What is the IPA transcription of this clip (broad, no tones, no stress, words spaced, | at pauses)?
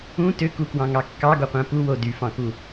ũ tøkukwɑ̃ŋɑ kːɑɡoqʷæ̃ puwo dyfɑ̃ku